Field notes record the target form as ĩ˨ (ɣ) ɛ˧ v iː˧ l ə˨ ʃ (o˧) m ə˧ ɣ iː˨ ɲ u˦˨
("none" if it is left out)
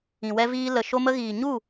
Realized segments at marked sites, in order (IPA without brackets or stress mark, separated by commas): w, o˧